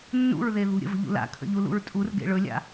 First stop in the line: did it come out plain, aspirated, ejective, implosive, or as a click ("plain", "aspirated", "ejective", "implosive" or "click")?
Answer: aspirated